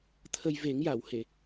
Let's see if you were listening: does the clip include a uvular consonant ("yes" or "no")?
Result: no